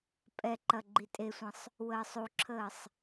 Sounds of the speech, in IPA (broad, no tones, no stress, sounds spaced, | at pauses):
pʼ ɛ ǃ ɐ ɡ͡ǃ i tʼ e sʷ ə̃ sˤ | w əː sˤ u ǁʰ əː sˤ